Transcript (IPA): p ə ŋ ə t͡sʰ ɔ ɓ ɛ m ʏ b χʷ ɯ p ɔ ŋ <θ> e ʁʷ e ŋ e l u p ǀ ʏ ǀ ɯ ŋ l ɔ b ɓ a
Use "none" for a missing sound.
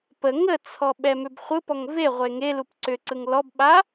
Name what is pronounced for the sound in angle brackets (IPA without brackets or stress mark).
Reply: v